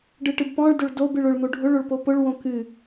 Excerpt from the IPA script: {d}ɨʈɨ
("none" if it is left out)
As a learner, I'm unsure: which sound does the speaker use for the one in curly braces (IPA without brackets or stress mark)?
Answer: ɖ